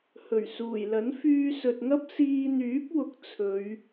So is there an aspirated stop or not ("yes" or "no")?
yes